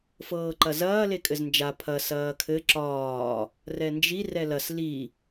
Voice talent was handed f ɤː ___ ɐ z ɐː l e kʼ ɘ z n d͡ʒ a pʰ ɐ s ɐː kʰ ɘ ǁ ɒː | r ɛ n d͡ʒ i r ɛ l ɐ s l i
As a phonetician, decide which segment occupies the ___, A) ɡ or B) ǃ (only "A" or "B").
B